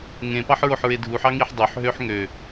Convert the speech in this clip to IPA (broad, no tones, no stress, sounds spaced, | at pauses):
ŋ ẽ p ɑ ħ ɹ o ħ ɹ e dʱ u ħ ɑ ŋ i ħ dˤ ø ħ ɦ ø ħ ŋ ø